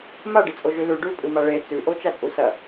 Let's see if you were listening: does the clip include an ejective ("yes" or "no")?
yes